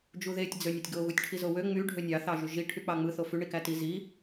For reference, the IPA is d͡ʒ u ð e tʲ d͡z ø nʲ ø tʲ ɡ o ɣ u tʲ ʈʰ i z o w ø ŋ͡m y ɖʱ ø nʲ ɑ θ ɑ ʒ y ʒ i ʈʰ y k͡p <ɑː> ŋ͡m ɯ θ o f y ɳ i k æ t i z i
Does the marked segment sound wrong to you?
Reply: yes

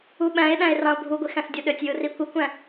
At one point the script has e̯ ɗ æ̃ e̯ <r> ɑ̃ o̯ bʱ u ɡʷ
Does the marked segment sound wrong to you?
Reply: no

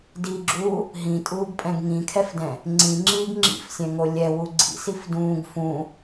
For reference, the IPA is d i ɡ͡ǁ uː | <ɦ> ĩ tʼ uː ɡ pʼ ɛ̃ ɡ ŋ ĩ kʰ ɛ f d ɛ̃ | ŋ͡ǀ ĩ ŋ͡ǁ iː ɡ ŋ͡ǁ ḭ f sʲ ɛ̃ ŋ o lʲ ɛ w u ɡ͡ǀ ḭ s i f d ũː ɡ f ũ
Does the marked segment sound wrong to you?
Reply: no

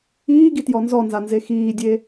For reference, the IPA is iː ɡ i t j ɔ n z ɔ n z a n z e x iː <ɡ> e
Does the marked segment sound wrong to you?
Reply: yes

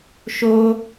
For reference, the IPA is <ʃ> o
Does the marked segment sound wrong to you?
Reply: no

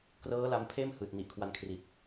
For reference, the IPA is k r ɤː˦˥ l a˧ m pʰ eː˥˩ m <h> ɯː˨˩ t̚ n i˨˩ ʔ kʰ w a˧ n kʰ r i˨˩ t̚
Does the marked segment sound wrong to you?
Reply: no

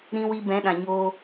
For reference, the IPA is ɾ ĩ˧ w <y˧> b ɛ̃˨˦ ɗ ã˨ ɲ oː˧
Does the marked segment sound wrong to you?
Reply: yes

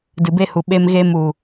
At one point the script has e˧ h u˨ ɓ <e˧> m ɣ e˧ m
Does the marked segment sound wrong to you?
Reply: no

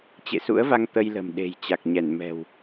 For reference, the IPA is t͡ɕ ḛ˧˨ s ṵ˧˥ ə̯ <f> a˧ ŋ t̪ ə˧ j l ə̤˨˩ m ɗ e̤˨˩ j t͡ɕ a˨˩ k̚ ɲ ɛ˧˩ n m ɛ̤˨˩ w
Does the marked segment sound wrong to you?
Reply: yes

